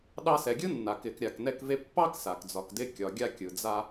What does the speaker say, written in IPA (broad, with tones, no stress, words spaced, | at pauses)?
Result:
ɗɑ˧sɛ˩ɡʲɯ˥nːa˩ kɪ˩kɾʲa˩knɛ˧kve˧ pːɑ˥ksa˩k d͡zɒ˩kdɪ˧kʲɒ˩ɡʲa˧ kʲɯ˩d͡za˧